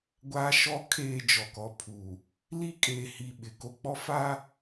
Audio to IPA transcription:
ɡʷ aː˦ ʃ ɔ˦ kʰ eː˦˨ d͡ʒ ɔ˨ k ɔ˨ pʰ uː˨ | l i˦ kʼ eː˨ h i˨ ɓ ɪ˨ k o˦ k͡p ɔ˦ f a˦

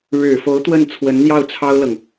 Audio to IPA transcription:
ɻ ɻ̩˨˩ f o˧˥ ʊ̯ t̪ w ə˥˩ n t͡sʰ w ə˧˥ n n̪ j ɑ˥˩ ʊ̯ t͡sʰ ɑ˥ ʊ̯ l ɤ˨ ŋ

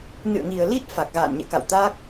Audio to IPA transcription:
n ɨ̰˧˨ ə̯ ŋ i˨˩ ə̯ l i˦˥ t̚ f a˨˩ k̚ ɣ a̰ː˧˨ n ɲ ɛ̰˧˨ k a̰˧˨ w t̪ a˦˥ k̚

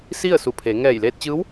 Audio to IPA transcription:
s i˥˨ ə̯ s u˧˩ pʰ e˩˧ ŋ ɛː˧˩ j l eː˧ t̚ t͡ɕ ɯː˧˥ w

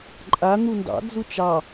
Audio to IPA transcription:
ǃʼ a n̪ u n d ɑ̰ d͡z u t͡ʃ ɑ

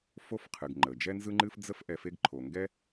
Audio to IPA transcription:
f o˦ f qʰ ɨ˩ ɡ ŋ͡ǃ ə˩ d͡ʒ ɛ˥ n z ɯ˥ ŋ͡ǃ ɨ˥ f d͡z ə˥ f ʔ ɛ˨ f e˦ ɡ ǃʰ o˩ ŋ ɡ ɛ˥

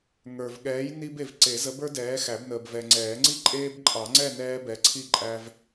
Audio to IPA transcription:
ŋ ə˞˨ v ɠ ɛː˨˥ j n i˦ b e˨ v ǀ e˨˩˦ z ə˨˥ b ə˞˦ d ɛː˨˥ x æ˨˩˦ b n əː˨ b v ɛ˨ ŋ͡ǀ ɛː˨˩˦ ŋ͡ǀ i˥˨ ǃʼ eː˦ b ǃʼ ɑ˨˩˦ ŋ͡ǀ ɛ˥˨ n ɛː˦ b ɛ˨˥ ǀʰ i˥˨ ǃʼ æ˦ v

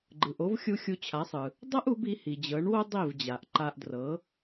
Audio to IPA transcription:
ɡ͡ǃ ɯ˩ ʔ o˥ v xʲ u˥ xʲ u˧ t͡ɕʰ a˩˥ sˤ ɯ˩ | dˤ ɤ˥ ʔ u˩˥ b i˩˥ h i˩ d͡ʑ ɤ˩˥ ɳ w o˥ dˤ i˥˩ v d͡ʑ a˩ ʔ ǃ a˧ ʔ d r ɤ˩˥

